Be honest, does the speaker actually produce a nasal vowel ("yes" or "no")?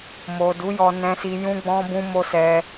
yes